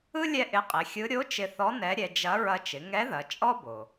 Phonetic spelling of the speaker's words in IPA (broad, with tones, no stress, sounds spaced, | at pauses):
ɯ˥ lʲ ɛ˥ ʔ ɪ˧˥ qʼ ɪ˩˧ xʲ ɯ˧˥ ɾʲ o˧˥ t͡ʃ ɪ˧ θ ɔ˧˥ n ɛ˧˥ ɾʲ ɛ˧ d͡ʒ ɐ˧˥ ɹ ɐ˧ t͡ʃ ɪ˩˧ ŋ ɛ˧˥ ð ɐ˩˧ t͡ʃʼ ɔ˥ b o˩